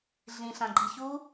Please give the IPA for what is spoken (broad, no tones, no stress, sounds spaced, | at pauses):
ɮ ĩ ɬ ã ɡ͡ǃ i ç u